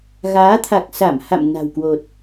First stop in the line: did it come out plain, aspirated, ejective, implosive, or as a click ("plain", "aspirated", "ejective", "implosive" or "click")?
aspirated